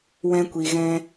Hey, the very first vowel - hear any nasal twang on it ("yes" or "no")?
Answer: yes